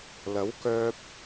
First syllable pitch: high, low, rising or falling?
rising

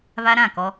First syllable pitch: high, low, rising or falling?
high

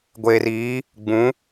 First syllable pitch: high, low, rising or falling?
low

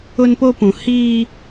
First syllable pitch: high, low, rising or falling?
high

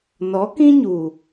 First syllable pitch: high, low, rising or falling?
rising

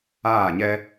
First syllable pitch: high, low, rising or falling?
falling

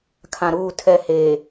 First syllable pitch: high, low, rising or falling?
low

